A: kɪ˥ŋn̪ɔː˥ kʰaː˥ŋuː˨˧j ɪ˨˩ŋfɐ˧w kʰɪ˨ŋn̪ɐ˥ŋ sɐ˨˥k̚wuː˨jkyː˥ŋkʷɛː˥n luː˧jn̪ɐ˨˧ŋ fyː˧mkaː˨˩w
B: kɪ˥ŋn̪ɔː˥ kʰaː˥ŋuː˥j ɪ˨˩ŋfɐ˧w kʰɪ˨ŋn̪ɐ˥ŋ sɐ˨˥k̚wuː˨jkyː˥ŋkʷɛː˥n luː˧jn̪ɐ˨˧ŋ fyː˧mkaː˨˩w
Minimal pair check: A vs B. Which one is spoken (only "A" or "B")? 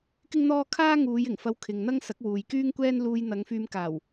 A